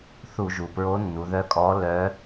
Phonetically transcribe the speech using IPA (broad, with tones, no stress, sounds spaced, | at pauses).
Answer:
θ u˧˩˧ ʒ u˩ p ɹ o˧˥ nː u˩˧ ð œ˧˥ kʼ ɔ˧˥ l œ˧˥